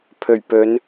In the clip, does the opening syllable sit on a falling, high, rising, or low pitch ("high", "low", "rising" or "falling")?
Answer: low